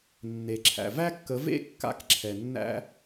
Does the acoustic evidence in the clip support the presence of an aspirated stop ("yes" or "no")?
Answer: yes